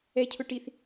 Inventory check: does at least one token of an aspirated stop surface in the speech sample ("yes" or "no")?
yes